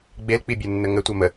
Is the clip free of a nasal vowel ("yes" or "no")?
yes